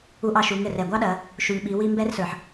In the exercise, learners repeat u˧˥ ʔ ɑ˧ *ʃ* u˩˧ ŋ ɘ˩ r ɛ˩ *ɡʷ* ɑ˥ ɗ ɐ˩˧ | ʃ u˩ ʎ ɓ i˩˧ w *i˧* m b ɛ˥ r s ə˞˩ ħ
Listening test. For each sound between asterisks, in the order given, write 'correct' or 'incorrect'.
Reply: correct, correct, correct

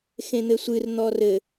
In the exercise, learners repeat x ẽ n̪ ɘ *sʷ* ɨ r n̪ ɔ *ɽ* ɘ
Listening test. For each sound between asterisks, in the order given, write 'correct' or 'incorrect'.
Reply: correct, incorrect: r

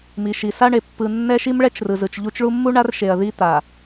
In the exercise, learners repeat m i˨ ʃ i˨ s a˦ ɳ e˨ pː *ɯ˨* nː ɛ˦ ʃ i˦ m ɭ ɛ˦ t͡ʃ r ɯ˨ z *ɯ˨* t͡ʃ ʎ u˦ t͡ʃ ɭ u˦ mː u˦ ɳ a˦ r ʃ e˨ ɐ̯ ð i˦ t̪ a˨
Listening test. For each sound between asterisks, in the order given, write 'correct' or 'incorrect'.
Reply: correct, correct

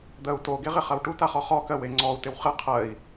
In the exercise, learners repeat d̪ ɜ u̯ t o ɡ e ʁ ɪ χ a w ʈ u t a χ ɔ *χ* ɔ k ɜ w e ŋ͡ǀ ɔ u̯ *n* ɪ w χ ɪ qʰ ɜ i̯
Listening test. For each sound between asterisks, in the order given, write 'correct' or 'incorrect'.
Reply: correct, incorrect: t

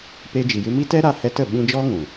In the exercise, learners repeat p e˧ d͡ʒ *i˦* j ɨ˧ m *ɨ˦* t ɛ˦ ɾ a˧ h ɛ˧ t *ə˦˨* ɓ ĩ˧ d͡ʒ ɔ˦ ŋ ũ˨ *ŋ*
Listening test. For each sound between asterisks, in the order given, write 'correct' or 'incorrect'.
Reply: incorrect: i˨, incorrect: i˦, correct, incorrect: none

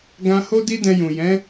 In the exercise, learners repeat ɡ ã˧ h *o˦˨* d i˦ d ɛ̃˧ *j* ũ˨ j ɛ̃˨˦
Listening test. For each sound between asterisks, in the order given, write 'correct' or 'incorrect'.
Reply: incorrect: o˦, correct

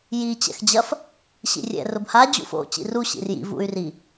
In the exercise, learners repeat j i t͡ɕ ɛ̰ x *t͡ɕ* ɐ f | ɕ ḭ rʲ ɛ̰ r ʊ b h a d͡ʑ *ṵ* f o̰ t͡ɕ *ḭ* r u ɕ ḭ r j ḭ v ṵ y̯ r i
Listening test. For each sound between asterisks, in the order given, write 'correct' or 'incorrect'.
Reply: incorrect: d͡ʑ, correct, correct

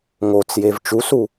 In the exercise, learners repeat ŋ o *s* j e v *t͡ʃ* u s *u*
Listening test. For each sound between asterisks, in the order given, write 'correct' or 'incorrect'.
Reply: incorrect: t͡s, correct, correct

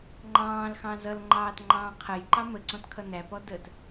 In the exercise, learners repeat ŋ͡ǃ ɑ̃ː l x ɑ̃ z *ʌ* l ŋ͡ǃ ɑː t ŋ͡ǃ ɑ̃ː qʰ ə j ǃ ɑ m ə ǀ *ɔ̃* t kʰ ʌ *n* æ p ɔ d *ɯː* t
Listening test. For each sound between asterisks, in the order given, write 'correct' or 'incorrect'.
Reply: correct, correct, correct, incorrect: əː

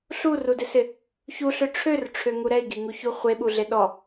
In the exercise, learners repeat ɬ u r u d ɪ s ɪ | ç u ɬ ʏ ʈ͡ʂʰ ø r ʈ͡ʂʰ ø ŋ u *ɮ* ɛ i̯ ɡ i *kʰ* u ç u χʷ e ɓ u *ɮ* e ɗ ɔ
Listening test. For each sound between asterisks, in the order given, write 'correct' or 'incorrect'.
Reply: incorrect: ɾ, incorrect: ŋ, correct

